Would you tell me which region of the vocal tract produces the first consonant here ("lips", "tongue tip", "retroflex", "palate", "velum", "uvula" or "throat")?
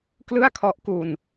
velum